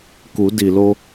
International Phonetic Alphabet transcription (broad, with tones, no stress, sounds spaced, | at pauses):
k u˩˧ d i˩ l o˧